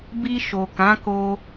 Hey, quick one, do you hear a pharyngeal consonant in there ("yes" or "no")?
no